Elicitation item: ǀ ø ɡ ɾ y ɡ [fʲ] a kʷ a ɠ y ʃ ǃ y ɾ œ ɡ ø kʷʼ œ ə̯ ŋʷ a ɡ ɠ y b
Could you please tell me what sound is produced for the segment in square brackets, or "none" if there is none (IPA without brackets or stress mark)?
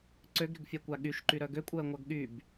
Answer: fʲ